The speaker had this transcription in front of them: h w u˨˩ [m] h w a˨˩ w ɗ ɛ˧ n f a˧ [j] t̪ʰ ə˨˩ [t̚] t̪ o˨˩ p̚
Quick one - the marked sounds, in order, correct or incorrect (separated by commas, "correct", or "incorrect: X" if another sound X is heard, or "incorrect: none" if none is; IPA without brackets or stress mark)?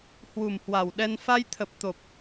correct, correct, incorrect: p̚